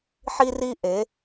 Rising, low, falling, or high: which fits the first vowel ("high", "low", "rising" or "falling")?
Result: high